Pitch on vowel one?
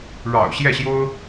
low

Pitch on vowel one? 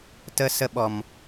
high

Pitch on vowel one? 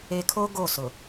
low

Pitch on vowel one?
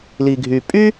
low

